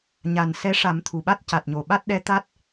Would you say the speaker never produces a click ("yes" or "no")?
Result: yes